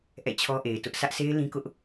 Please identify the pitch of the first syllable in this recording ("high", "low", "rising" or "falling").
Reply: falling